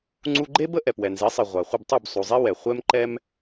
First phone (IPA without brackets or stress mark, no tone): ŋ͡ǀ